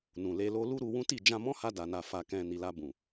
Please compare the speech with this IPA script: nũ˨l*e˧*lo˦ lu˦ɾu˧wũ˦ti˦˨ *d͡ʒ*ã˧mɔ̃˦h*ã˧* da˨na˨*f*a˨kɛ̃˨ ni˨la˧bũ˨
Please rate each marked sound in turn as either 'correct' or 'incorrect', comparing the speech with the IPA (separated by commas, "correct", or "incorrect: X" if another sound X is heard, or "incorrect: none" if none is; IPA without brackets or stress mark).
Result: correct, correct, incorrect: a˧, correct